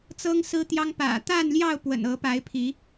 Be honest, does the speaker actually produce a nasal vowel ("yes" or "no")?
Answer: no